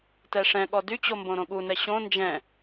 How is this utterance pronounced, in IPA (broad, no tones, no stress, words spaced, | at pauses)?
tɛʂɛ̃ɠɔ dyt͡ɕo mbõɾõɠunɛ ɕõ nd͡ʒɛ̃